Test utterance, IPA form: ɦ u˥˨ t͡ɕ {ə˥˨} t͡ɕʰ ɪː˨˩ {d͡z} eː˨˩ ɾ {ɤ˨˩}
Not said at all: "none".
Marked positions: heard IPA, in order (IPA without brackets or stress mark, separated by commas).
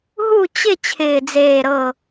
ɪ˥˨, d͡z, ɤ˨˩